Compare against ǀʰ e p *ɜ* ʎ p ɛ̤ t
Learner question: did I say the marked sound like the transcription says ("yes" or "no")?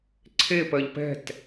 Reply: yes